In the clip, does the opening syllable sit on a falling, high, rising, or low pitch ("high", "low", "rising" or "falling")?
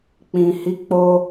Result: low